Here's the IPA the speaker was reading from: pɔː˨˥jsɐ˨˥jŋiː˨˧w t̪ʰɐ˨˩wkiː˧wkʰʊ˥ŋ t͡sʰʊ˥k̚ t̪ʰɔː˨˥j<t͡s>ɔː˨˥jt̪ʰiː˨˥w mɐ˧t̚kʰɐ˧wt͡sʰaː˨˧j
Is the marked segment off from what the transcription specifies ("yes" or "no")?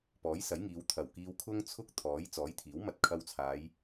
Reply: no